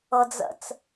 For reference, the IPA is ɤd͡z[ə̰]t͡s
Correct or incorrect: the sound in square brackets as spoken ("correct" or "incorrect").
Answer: correct